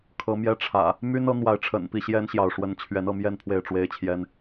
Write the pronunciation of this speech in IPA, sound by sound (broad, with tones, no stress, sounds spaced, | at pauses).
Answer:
kʰ ɤ˨˦ m j ɛ˦ ʈ͡ʂʰ ä̰˨˩ | m y˦ n ɤ˨˦ n̪ w a˨˦ ɪ̯ ʈ͡ʂʰ ə̰˨˩ n p i˥˨ ɕ j ɛ˦ n ɕ j ɑ˨ ʊ̯ ʂ w ə˨˦ n t͡ɕʰ ɥ ɛ˨˦ n ɤ˥˨ m j ɛ˥˨ n pʰ w e˥˨ ɪ̯ ʈ͡ʂ w e˦ ɪ̯ t͡ɕʰ j ɛ˦ n